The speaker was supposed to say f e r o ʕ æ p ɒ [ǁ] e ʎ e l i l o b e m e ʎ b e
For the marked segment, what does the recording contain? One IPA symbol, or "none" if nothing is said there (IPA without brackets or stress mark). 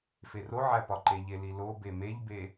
ǃ